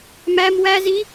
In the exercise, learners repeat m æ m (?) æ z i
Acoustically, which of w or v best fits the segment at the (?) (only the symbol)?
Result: w